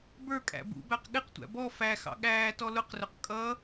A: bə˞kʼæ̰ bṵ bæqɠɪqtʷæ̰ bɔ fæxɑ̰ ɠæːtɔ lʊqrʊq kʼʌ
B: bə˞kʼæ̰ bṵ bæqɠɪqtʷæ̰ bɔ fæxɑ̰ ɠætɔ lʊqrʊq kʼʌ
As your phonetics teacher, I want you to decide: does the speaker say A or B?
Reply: A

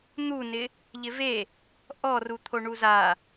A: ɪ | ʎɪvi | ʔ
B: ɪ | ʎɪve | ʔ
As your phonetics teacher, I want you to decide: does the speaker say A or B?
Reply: B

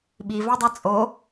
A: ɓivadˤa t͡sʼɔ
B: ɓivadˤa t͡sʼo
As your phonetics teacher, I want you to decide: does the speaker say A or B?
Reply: B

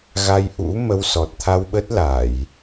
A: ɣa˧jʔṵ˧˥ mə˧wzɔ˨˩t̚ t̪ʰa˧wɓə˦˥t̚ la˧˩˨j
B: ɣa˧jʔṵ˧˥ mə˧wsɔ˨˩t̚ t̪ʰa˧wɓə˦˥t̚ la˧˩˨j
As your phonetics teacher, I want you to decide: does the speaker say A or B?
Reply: B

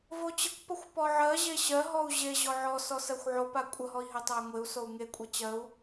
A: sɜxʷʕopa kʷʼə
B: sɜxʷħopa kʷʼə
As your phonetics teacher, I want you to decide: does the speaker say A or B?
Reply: A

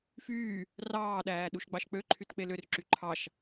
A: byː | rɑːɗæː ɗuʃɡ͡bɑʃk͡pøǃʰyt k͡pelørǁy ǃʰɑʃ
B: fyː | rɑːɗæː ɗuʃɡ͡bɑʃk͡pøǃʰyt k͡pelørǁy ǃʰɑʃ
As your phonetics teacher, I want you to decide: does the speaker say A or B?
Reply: B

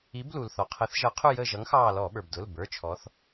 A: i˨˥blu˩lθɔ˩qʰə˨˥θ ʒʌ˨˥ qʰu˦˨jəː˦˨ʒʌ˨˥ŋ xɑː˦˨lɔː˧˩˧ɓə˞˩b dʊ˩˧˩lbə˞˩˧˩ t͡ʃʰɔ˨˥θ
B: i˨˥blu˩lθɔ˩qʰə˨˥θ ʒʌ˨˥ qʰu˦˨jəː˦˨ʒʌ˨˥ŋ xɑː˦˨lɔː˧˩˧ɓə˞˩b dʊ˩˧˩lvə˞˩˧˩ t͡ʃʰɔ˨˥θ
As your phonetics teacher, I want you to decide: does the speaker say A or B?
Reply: A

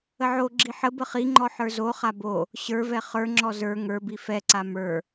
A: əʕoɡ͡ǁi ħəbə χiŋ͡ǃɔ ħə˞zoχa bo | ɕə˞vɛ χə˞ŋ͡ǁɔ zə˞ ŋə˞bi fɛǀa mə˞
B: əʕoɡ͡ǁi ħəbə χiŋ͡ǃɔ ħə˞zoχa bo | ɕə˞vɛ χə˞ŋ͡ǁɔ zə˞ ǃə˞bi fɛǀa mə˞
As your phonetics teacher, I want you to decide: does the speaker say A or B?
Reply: A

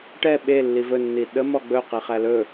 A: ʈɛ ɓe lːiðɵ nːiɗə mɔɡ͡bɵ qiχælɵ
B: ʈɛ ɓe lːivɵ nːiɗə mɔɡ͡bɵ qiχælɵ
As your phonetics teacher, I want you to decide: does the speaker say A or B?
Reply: B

